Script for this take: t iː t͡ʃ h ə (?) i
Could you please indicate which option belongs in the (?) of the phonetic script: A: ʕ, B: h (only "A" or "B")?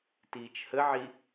A